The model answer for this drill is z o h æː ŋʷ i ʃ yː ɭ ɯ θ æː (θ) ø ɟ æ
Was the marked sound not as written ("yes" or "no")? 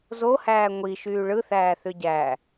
no